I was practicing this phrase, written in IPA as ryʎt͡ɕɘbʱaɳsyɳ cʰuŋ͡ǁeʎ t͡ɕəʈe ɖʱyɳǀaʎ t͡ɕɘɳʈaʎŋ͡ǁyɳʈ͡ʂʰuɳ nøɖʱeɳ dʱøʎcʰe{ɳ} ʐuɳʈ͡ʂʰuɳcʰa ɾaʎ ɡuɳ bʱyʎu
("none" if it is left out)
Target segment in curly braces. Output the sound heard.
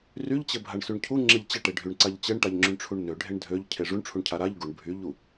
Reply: none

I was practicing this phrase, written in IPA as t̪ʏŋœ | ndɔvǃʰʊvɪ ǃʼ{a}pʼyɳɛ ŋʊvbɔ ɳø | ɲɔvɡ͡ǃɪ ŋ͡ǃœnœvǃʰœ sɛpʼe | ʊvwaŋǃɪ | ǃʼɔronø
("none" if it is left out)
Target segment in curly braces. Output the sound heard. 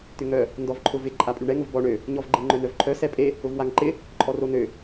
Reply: a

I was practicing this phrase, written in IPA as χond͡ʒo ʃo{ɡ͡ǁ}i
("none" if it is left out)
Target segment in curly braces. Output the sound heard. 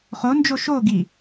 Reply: ɡ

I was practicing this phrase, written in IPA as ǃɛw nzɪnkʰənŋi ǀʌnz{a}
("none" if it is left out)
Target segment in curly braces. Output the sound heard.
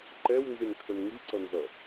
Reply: ʌ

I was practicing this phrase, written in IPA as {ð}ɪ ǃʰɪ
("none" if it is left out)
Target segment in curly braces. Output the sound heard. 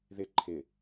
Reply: ð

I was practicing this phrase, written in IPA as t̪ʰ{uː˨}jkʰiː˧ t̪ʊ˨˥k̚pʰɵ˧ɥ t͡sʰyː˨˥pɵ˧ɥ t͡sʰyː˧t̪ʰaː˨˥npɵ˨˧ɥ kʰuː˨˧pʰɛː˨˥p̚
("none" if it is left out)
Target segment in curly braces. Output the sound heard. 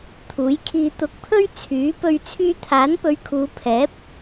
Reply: uː˨˥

